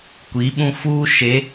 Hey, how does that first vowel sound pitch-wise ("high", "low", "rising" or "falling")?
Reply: rising